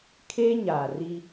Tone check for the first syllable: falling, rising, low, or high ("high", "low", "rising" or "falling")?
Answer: high